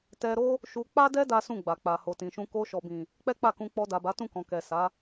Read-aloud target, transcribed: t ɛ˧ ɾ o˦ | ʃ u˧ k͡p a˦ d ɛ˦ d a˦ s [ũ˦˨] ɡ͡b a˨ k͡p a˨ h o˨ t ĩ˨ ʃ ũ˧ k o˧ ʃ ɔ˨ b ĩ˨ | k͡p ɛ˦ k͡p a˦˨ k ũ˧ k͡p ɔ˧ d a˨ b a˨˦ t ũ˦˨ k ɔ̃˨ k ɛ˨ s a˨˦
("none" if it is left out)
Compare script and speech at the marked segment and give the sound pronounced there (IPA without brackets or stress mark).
ũ˦˨